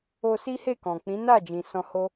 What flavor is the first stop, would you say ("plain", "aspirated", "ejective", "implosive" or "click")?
plain